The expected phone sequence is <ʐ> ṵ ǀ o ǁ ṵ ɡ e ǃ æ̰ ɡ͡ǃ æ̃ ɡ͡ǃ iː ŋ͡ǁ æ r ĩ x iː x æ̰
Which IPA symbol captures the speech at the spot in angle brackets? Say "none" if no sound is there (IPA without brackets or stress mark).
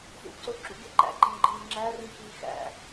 z